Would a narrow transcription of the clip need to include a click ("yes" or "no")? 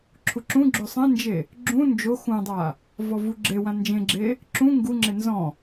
yes